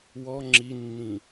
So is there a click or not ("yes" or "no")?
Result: yes